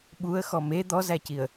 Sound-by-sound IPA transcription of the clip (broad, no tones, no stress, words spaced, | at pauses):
ɓuə̯ xɔme d̪ɔzæciə̯